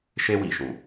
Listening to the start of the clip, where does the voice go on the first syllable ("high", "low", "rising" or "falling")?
high